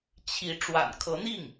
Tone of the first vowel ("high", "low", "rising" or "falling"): rising